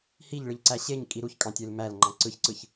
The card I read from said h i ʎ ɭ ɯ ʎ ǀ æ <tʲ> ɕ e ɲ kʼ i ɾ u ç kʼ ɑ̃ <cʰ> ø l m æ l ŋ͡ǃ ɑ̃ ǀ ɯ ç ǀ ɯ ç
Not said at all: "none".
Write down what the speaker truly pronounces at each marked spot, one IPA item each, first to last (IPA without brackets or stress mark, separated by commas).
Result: none, tʲ